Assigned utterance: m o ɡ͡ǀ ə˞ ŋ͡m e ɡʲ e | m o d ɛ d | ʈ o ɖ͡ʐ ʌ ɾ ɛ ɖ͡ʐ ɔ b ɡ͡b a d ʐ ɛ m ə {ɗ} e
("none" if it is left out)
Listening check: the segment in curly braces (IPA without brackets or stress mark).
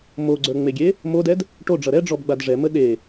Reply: ɗ